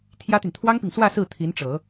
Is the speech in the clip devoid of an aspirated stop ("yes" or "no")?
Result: no